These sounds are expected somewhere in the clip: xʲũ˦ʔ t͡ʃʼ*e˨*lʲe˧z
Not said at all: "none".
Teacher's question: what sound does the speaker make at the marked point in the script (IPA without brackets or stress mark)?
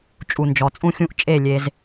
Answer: e˦˨